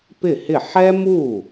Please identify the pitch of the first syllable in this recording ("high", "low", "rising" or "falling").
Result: falling